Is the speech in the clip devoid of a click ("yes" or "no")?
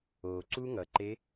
no